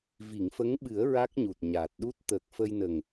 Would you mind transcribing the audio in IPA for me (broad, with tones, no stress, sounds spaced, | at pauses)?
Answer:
v i˨˩˨ ŋ f ə˧˥ ŋ ɓ ɨ˨˩˦ ə̯ ɹ a˦˥ k̚ ɲ u˨˩ t̚ ɲ aː˨˩ t̚ ɗ u˦˥ t̚ t̪ əː˨˩ k̚ f ə˧ j n ə˨˩ ŋ